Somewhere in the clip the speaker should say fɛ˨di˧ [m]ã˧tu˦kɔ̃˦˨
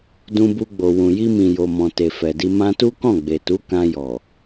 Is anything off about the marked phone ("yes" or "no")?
no